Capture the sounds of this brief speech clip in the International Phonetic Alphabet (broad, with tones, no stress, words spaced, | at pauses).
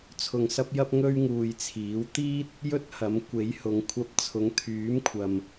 t͡sʰʊ˧ŋsɐ˥p̚jɐ˥p̚ ŋɵ˥ɥŋuː˧jt͡sʰiː˨˥w t̪iː˥t̚ | jɵ˥t̚hɐ˨˥m kʷe˨˥jhʊ˨˧ŋ kʷʰɐ˧p̚t͡sʰʊ˨˥ŋ t̪ʰyː˨˥mkʷʰɐ˨m